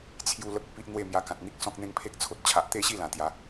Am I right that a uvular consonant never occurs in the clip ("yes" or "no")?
yes